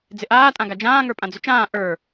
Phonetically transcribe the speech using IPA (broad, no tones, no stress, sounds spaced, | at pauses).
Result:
d͡z ɪ ʔ aː tʼ ã ɡ a d͡ʒ ãː ŋ ə˞ pʼ ã d͡z ʏ t͡ʃ ãː ʔ ə˞